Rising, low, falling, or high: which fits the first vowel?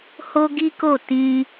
high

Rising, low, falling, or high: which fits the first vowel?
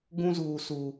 high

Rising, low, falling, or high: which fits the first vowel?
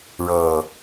low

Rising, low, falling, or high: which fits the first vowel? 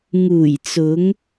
low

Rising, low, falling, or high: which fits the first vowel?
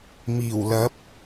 low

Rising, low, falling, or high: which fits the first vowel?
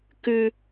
high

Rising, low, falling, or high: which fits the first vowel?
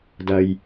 low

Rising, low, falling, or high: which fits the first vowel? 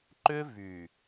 high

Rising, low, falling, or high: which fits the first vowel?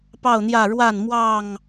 falling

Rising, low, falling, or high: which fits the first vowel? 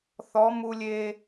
rising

